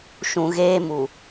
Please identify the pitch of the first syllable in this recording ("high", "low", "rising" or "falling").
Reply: low